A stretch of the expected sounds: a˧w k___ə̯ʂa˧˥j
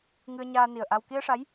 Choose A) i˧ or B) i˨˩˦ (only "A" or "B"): A